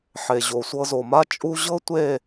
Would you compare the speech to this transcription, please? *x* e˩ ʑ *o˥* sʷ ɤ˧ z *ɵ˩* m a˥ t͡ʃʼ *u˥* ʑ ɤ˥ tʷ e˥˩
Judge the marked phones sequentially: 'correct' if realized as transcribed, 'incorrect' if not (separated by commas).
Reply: incorrect, incorrect, incorrect, correct